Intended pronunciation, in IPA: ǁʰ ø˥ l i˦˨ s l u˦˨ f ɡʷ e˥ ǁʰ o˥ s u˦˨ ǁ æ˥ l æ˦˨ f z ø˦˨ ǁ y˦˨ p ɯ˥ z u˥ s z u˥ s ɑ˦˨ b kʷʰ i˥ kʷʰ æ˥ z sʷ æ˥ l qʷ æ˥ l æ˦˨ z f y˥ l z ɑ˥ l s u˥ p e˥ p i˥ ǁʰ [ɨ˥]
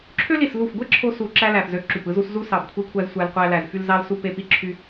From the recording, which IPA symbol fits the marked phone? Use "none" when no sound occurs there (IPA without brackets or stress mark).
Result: y˥